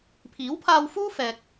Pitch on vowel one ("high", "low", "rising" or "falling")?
rising